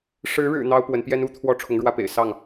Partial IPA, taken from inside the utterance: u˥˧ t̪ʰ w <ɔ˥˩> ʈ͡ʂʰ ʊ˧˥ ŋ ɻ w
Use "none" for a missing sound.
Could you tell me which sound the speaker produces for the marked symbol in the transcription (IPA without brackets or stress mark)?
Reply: ɔ˥˩